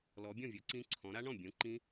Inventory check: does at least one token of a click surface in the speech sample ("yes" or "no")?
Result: yes